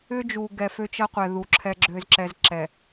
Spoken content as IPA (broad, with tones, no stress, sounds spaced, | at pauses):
ʏ˦ d͡ʒ u˨ ɡ ɛ˨ f ø˦ t͡ʃ ʌ˦ qʷ ɛ˨ ð u˨ ǁʰ ɛ˦ ɡ͡ǁ ø˦ z ǁ ɛ˦ z ǁ ɛ˨